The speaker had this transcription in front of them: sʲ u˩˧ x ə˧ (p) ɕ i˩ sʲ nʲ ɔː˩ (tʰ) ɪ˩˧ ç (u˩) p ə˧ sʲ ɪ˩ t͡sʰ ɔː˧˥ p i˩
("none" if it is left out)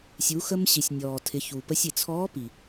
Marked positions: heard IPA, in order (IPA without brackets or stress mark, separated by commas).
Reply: m, tʰ, u˩